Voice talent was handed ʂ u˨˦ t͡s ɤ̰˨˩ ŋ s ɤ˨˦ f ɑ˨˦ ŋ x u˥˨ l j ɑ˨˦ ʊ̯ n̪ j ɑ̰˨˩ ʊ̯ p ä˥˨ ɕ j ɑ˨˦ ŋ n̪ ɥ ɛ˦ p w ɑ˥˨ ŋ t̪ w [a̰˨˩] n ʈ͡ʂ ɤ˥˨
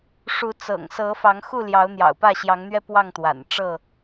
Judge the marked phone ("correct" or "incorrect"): correct